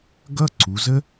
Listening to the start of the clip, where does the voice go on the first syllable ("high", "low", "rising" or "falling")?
high